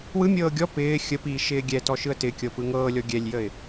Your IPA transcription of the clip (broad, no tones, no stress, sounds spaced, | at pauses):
w ɯ mʲ ɤː ɡʲ ɔ p ɪː xʲ ə p iː ʃ ɪː ɡʲ ɛ t ɔ ʃ ɯ ə̯ t ɪ kʲ ɤ p ɯ ŋ ɤː lʲ ɔ ɡʲ ɛ lʲ j ə ɪ̯